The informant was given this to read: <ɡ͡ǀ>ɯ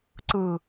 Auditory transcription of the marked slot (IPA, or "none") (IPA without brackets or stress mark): ǀ